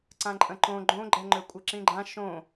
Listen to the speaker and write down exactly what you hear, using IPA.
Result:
ǀ ã ǃʼ ə̃ ǃ õ ɡ͡ǃ õ ɡ͡ǃ ɛ ŋ͡ǃ ø kʷʼ ə ǁ ĩ ɡ͡ǃ ã ʃ õ

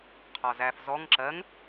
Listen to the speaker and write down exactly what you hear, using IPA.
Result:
qʰ ɒ z æ f z ɔ ŋ ǁ ɜ ŋ

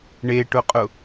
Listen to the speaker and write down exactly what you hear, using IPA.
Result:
ɳ e ʈ ʊ qʼ ʊ

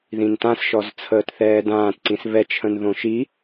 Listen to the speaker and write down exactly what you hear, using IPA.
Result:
ð ĩ n t ã s ʃ ɔ z t͡sʰ əː t θ ɛː d ãː t ǀ ĩ s β ɛ t͡ʃʰ ə̃ n ð õ ʃ i

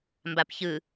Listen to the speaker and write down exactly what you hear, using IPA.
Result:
m b a p ç ɯ

